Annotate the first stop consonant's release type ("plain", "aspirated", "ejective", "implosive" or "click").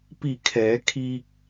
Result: plain